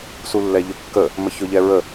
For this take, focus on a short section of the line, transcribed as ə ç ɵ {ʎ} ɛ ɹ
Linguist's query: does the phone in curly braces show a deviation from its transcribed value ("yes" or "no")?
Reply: no